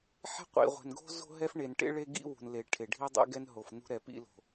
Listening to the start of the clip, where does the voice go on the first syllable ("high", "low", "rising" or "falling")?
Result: high